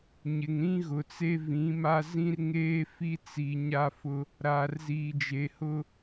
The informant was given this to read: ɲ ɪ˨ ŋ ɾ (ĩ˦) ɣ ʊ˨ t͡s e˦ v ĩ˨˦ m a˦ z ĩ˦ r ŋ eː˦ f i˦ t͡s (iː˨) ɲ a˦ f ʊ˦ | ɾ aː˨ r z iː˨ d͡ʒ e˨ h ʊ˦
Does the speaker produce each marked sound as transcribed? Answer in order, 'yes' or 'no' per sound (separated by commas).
yes, no